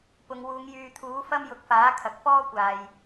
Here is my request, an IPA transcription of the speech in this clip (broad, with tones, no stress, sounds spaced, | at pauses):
p ʊ˨˧ ŋ w uː˨˧ ŋ j yː˨ t̪ʰ uː˨˥ f ɐ˥ m j ʊ˨˥ k̚ f aː˨˥ kʰ ɐ˨ k̚ f ɔː˥ kʷ aː˨ j